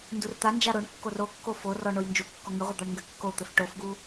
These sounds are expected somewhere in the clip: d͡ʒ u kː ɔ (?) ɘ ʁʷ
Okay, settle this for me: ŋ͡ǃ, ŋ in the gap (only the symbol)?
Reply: ŋ